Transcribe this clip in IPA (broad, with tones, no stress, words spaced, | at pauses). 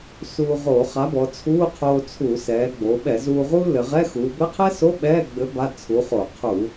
suː˧ ʁoː˧˩˧χa˨˥bɔ˩˧ t͡sʰuː˧˥˧ qʰoː˧t͡sʰu˧˩˧sɛː˩˧ ɡ͡bo˩˧ɓɛ˧˩˧ zuː˧ʁuː˥ lɘ˩˧ ʁɛ˧˥˧xuː˩˧ bɘ˧˥˧qʰɛ˥so˧˥˧ ɓɛː˧˥˧ɡ͡bɘ˨˥ ba˧˥˧t͡sʰu˨˥χo˧˩˧ qʰu˧˩˧